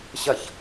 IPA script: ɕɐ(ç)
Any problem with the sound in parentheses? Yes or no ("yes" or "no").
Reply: no